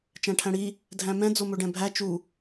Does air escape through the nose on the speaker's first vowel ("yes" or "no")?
yes